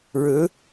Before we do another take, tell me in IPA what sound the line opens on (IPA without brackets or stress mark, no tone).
ɻ